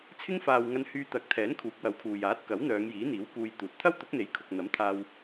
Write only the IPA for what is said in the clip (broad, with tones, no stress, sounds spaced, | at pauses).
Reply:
t͡sʰ ɪ˥ ŋ f aː˨ w ŋ ɐ˧ n h yː˧ t̪ ɐ˨˥ k̚ t̪ʰ ɛː˨˥ n kʰ uː˨˥ k̚ w ɐ˨˥ w kʰ uː˨ j aː˨˥ t̚ k ɐ˨˥ w n̪ œː˨˧ ŋ j iː˨˥ n̪ iː˨˥ w k uː˧ j t̪ uː˨˥ t̚ t̪ʰ ɐ˥ w t̪ ʊ˨˥ k̚ n̪ e˨˥ j kʰ ʊ˨ k̚ n̪ ɐ˨˥ m t̪ʰ aː˧ w